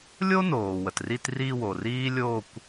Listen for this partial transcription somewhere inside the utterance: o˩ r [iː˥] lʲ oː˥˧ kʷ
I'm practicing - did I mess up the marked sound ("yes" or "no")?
no